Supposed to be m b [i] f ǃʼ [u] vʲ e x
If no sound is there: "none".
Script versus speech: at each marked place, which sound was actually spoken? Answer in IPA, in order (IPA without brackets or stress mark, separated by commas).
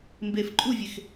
e, u